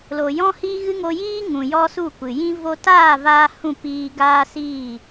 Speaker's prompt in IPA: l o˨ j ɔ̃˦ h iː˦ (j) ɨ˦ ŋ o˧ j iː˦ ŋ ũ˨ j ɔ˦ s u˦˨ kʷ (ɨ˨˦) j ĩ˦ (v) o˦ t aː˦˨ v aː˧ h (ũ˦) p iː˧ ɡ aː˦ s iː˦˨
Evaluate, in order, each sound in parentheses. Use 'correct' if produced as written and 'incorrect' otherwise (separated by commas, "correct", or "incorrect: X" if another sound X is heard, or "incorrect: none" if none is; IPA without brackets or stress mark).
incorrect: ɣ, incorrect: ɨ˨, correct, incorrect: ũ˦˨